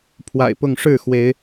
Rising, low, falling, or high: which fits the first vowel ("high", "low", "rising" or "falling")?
low